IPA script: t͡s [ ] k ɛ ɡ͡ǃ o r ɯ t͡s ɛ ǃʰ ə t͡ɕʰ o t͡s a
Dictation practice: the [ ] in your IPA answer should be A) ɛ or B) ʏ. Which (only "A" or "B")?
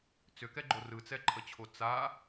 B